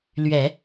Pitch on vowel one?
low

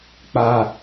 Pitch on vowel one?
high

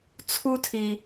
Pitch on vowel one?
high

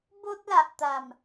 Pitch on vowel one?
high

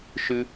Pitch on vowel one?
high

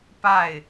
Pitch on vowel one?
falling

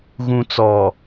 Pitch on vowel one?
low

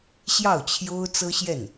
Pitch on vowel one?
falling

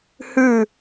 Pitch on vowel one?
falling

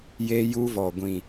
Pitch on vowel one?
high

